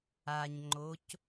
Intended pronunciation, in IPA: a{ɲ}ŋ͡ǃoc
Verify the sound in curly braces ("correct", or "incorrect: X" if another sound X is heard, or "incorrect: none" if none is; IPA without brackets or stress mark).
correct